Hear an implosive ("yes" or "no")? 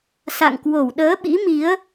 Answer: yes